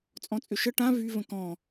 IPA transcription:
t͡sʼɔ̃t͡sʼʏʃə ʈã vy və̃kɔ̃

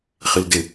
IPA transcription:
χildɪ

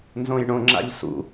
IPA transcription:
nzõjɳõŋ͡ǁa̰ʎ sṵ

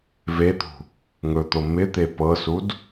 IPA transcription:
vet̪ṳ | ŋɵt̪o mɪt̪e pɤsud

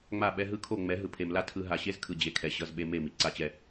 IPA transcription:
ŋ͡ma˦˨ɓɛ˦ ɦɯ˦kʰo˦˨ ŋ͡mɛ˨˦ɦɯ˨pʰe˨mla˦ tʰɯ˦ ɦa˨ɕe˦zkʰɯ˨ d͡ʑe˨kʰɛ˨ ɕʌ˦z ɓe˦ me˦˨mi˨ ǀa˦t͡ɕɛ˦

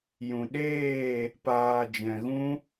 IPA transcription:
jũ˨ɗeː˦˨ | paː˨d͡ʒɛ̃˨ɣũ˧

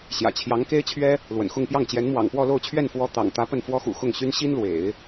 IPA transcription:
ɕjä̰˨˩t͡ɕʰjɑ˧˥ŋke˥ɪ̯t͡ɕʰɥɛ˥ | lwə̰˨˩nxʊ˥˧ŋpjɑ˥˩ŋ t͡ɕjɛ˧˥nmwɑ̰˨˩ŋpwɔ˥˧ lo˥˧ʊ̯t͡ɕʰɥɛ˥˩nfwɔ˧˥ t̪ɑ̰˨˩ŋ t̪ä˧˥ pə˥˩nfwɔ˥xṵ˨˩ xʊ˥˩ŋ ɕy˥n ɕi˥nlwḛ˨˩˦ɪ̯

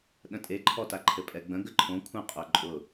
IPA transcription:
ɗə̃tʼeǃʰɔta ǃʰɘpʼɛɡ͡bə̃ ɡəǃʰõ kʷʰə̃ qʼʊ ǃʼʊ

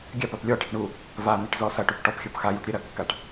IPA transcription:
ɡʲapap lʲɔʈaʈ ɳu | van̪eʈ zɔsɐʈup ʈɔpxʲɔp xajuʈ ɾʲeɾɐkːaʈ

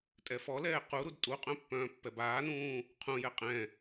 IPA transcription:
tʼɛfɔlɛː quɾud tʼuqʼœ̃ pːœ̃ːpːɛbaːnũː | qʰũjɛ qʼɛ̃

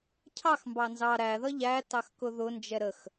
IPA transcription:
cʰɑxmbɑ nzɑ ɾæðʌ ʎætɑx kʊðʊnd͡ʒɛ ɾəx

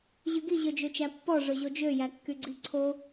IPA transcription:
ʑyɡi ʑød͡ʒøt͡ʃæpːɔ ʐɵʑod͡ʒø jækːyɡ͡ǀiǀʰo

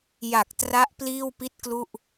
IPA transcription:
ja˨˩k̚tra˦˥ʔ pliː˥˩wpi˥˩t̚klu˥˩ʔ

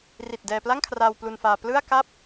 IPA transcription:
ri˨˩t̚ dɛː˧pla˥˩ŋkʰraː˧w plu˧nfaː˧ plɯ˥˩a̯ka˥˩p̚

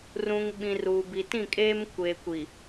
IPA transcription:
rũ˨ŋɓĩ˨r u˨ bi˨tĩ˦˨kʼeː˦m kʷeː˨kʷi˨

